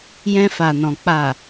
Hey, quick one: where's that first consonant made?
palate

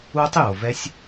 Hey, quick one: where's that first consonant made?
tongue tip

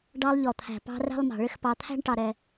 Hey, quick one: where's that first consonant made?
retroflex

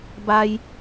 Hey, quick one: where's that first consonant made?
lips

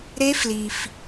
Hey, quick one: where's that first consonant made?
tongue tip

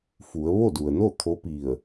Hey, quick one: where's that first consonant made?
lips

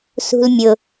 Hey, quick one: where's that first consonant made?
tongue tip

